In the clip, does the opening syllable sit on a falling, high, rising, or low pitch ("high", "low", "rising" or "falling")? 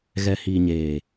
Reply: low